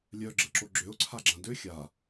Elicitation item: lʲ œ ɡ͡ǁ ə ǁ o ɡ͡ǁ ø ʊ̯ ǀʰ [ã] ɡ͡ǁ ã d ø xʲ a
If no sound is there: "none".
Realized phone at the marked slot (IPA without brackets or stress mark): a